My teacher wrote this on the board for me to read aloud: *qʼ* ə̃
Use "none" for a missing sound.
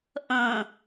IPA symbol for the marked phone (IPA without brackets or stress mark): ʔ